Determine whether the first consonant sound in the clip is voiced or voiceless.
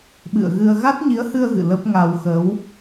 voiced